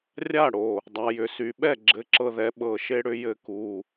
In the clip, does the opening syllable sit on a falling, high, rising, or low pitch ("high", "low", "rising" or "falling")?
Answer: falling